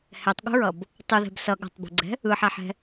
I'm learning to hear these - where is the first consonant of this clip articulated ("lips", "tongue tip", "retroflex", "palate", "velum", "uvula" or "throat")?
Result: throat